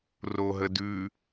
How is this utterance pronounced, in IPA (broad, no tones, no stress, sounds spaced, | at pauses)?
r o ɦ ə d ʉ